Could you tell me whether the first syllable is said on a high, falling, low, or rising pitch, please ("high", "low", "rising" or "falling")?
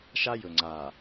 high